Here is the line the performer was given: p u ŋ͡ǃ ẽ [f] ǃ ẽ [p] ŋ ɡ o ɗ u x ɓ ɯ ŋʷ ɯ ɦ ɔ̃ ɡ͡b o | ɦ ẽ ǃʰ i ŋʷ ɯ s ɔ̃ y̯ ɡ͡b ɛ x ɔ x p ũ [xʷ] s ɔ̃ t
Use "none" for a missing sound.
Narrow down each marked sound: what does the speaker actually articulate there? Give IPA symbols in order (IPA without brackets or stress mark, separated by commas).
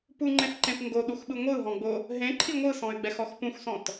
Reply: f, p, xʷ